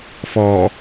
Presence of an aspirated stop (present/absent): absent